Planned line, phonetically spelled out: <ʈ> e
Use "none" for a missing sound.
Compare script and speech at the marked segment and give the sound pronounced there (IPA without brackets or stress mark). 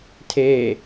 tʰ